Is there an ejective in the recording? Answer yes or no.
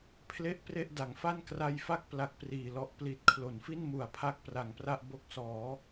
no